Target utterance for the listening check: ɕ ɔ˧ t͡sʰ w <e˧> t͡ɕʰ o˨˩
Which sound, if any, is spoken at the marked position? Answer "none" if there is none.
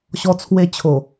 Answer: e˧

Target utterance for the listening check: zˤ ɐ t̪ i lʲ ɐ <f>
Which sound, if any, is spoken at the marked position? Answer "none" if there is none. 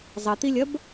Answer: b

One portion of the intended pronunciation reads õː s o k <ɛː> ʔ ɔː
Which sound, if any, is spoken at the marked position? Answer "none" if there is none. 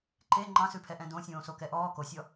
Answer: ɛ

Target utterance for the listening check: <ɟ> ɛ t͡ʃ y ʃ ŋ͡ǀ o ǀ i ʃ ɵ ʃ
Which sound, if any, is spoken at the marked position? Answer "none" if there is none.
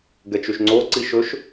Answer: ɡ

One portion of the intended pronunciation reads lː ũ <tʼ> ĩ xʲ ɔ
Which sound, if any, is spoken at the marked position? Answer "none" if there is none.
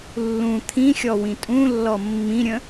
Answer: t̪ʰ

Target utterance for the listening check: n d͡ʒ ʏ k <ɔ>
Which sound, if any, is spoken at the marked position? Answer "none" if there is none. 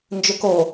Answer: o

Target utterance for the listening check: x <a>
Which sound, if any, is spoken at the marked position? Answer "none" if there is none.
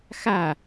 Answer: a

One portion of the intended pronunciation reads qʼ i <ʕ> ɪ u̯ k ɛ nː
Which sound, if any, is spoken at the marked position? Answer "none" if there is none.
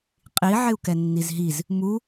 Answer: ʕ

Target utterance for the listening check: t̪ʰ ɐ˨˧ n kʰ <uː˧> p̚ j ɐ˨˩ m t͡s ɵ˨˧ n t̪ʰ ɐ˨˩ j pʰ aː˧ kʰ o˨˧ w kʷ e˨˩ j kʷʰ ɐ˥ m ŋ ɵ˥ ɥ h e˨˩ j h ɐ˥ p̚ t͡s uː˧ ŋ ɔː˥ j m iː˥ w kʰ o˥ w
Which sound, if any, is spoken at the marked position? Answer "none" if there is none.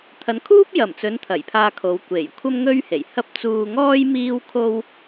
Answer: uː˥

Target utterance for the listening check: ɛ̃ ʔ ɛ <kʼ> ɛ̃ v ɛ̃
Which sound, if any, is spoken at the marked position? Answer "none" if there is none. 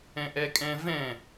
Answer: kʼ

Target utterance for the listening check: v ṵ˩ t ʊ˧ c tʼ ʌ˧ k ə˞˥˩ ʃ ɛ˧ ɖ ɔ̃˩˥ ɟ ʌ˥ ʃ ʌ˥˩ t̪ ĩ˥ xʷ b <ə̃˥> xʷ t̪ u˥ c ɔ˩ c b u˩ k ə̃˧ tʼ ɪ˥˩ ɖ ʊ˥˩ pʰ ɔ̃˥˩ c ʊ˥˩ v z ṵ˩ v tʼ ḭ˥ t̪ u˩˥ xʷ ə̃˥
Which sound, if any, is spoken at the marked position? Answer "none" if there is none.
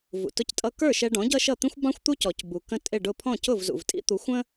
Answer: ɑ̃˥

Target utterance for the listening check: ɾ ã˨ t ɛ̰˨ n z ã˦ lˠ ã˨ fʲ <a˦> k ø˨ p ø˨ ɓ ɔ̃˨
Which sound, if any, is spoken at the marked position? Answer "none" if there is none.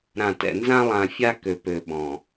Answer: a˦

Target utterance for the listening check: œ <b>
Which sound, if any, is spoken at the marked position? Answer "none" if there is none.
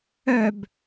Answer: b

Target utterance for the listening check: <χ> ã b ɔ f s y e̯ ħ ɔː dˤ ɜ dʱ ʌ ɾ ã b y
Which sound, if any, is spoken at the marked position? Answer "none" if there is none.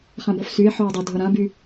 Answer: χ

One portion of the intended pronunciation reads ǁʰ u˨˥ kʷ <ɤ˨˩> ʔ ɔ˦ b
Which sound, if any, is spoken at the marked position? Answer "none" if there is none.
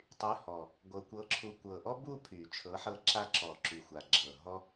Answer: ɤ˨˩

